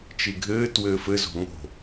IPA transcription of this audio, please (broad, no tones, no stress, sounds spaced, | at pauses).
t͡ʃ i ɡʱ ɘː t w ɘː f ɘ z o̤ ŋ o̤